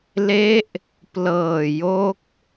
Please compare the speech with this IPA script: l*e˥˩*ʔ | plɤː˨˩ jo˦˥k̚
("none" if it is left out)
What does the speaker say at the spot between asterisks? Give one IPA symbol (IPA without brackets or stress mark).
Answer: e˦˥